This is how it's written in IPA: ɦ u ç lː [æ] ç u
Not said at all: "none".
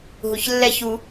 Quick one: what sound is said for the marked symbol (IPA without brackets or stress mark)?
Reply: ɛ